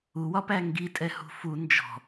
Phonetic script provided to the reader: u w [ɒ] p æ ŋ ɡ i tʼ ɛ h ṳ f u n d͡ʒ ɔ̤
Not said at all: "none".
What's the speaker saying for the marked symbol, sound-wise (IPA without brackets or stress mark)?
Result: ɒ